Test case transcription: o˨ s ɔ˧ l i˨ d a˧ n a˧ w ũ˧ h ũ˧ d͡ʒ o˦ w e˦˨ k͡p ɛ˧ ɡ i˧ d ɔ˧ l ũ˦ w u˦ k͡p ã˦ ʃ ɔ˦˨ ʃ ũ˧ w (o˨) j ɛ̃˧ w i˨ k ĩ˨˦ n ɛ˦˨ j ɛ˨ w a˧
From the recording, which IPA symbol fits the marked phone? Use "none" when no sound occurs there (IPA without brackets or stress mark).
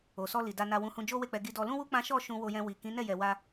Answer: o˧